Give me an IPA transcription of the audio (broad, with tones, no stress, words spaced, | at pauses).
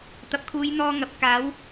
t̪ɐ˨p̚kʰuː˨˧jn̪ɔː˧ ŋɐ˨p̚ kaː˨˥w